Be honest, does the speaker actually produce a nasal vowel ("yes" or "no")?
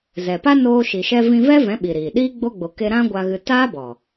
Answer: yes